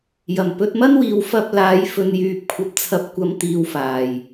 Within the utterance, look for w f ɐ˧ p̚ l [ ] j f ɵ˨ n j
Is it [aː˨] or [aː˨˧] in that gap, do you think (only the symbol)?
aː˨˧